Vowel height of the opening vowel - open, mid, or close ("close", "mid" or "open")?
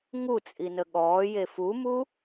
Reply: close